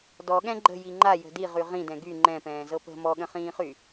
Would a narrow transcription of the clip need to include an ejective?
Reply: no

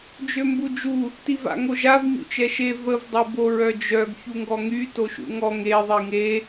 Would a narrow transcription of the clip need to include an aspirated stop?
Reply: no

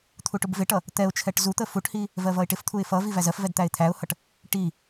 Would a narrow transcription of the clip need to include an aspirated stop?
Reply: yes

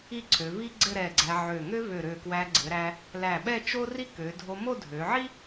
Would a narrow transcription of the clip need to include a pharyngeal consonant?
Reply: yes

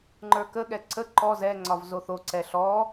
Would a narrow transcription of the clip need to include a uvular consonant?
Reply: no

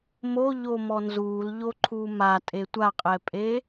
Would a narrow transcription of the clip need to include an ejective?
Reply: yes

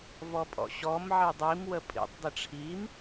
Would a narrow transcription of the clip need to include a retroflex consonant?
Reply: yes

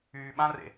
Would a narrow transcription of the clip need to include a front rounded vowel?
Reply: yes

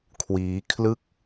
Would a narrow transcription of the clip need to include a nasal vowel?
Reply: no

